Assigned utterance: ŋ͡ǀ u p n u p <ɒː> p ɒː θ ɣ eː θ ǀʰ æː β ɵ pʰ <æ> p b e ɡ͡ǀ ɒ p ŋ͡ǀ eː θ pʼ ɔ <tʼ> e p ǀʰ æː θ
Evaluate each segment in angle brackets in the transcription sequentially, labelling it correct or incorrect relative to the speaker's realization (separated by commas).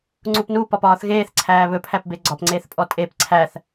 incorrect, correct, correct